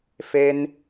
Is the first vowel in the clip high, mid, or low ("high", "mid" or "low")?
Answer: mid